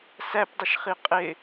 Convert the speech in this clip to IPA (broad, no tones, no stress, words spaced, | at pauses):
sæpdˤɪʃχi qʼɪ